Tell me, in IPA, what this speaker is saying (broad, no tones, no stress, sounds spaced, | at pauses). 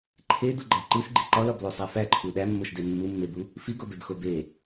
ǃʰ e d u ɡ͡ǃ æ ǃ i s ɡ͡ǃ i ǃ ɒ l ɒ b l o sˤ æ f æ ǃʰ u ɗ æ mː o ʃ d e mː u mː e b u | f i ɡ o b e b x o b e